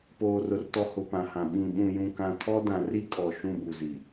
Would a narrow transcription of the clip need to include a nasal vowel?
yes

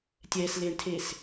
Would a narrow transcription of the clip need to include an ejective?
no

